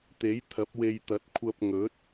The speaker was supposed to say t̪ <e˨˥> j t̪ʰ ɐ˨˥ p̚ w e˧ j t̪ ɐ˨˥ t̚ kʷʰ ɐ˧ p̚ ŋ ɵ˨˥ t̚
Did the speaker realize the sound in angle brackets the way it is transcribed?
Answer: yes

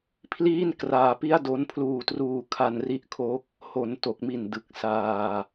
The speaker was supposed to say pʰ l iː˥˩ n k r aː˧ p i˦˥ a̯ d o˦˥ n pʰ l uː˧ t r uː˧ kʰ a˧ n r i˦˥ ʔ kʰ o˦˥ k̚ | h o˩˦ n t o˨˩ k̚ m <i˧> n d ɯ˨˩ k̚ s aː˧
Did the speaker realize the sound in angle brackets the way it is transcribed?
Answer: no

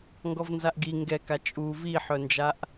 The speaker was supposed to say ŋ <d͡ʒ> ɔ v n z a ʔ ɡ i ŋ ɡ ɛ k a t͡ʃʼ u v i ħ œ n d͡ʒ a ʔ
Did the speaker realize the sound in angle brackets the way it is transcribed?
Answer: no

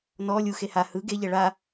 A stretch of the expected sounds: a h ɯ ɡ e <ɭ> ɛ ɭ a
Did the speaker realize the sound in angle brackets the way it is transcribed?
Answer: no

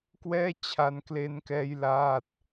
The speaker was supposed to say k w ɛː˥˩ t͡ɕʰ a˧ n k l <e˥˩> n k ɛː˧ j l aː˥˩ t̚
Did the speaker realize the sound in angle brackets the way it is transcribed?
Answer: no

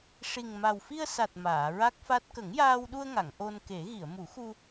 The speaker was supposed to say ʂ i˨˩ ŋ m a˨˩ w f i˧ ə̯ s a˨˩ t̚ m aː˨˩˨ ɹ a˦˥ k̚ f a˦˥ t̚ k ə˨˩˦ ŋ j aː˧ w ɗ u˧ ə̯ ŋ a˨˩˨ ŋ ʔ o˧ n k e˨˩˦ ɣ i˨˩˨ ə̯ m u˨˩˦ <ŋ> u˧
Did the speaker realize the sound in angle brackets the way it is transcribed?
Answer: no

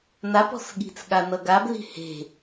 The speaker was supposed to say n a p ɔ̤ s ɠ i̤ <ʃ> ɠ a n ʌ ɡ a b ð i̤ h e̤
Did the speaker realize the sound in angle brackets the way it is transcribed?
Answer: no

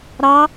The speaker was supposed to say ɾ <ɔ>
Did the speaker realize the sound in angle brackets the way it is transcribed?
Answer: no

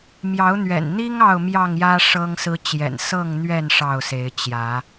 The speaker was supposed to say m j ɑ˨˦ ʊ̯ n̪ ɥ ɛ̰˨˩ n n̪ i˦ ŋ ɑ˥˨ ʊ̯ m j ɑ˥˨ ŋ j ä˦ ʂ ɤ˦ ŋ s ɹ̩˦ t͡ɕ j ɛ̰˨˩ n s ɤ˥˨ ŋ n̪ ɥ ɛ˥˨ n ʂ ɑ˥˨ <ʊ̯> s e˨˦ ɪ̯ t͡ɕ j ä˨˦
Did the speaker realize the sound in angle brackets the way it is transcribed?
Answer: yes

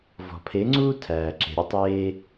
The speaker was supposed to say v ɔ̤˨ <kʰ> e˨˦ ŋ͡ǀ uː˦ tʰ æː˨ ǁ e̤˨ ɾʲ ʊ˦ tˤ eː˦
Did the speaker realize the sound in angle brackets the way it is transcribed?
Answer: no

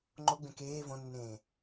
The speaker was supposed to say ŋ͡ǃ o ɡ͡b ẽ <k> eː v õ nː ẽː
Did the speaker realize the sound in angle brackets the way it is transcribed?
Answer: yes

